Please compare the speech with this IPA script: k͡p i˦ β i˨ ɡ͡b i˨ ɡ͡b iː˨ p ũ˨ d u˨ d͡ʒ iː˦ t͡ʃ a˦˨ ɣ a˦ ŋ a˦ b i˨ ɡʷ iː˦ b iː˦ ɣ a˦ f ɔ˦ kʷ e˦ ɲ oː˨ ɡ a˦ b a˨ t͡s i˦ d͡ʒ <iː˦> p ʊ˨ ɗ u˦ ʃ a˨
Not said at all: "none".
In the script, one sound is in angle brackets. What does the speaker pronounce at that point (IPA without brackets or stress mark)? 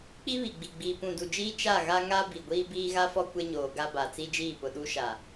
iː˦˨